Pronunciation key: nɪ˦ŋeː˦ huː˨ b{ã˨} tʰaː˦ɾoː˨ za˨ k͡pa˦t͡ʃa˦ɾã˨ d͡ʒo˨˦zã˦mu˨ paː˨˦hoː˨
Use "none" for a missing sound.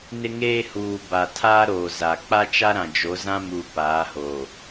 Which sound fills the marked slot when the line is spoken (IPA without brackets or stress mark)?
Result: a˨